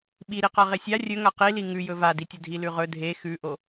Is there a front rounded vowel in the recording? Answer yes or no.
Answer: no